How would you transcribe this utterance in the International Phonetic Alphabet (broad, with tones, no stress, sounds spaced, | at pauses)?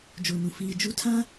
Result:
d͡ʒ oː˨ n ũ˨ f iː˨ d͡ʒ u˦ tʰ ã˦